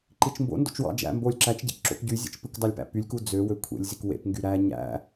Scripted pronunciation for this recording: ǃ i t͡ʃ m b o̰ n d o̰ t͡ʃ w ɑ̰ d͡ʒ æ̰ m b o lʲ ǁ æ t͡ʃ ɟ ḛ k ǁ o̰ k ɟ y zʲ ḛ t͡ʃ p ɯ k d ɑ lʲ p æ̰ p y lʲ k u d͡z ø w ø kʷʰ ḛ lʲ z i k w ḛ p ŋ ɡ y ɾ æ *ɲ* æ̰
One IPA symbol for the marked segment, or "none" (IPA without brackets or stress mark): ɲ